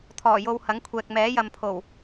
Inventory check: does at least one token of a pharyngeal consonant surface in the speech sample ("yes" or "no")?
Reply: no